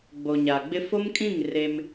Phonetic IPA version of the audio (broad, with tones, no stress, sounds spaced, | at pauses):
ɡ͡b o˨ ɲ a˨ ɡ͡b ɪ˦ f o˦ m kʼ ĩ˦˨ ŋ r e˦ m